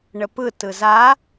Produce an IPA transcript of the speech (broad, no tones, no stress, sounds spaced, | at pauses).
ɳ ə p ɯ t ɯ z a